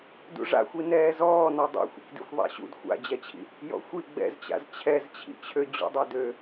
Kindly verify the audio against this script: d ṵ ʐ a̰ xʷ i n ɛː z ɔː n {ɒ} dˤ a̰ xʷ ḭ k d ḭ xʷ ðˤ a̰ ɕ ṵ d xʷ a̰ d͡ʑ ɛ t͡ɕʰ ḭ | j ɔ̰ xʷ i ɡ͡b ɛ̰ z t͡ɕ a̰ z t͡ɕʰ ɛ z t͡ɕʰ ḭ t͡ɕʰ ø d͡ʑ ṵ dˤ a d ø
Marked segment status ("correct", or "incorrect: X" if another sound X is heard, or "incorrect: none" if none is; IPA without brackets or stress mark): correct